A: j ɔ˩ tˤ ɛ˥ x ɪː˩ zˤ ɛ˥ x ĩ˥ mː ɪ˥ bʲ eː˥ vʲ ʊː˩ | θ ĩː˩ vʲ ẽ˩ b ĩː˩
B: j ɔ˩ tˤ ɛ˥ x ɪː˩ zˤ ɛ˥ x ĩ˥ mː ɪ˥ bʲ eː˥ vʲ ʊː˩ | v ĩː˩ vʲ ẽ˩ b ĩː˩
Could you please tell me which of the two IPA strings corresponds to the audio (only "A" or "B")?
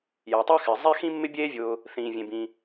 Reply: A